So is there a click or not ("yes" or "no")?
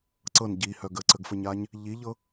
yes